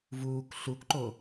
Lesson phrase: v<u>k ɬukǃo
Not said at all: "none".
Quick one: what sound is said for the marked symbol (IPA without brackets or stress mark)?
uː